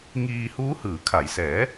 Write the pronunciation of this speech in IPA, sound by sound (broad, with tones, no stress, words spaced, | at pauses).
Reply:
ŋiː˧ huː˦˥hɯː˩˦kʰa˩˦j sɛː˩˦